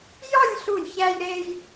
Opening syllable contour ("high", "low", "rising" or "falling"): falling